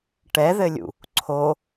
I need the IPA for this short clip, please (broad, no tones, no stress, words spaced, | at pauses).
ʈɛðɘlʲṵ | ǀʰo